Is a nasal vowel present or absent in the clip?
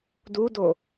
absent